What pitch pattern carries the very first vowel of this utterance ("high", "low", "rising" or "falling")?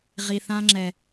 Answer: low